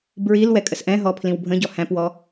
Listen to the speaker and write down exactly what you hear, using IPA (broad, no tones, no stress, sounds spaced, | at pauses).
b ɹ i l w ɛ kʼ ə s ʔ ɛ̃ ɦ ɔ pʰ l ĩ w bʱ ə̃ ɟ ɔ h æ̃ p w ɔ